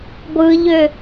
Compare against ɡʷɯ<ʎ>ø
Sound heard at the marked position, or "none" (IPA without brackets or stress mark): ʎ